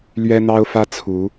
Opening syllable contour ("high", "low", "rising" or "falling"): high